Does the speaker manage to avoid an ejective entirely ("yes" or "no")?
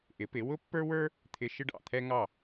yes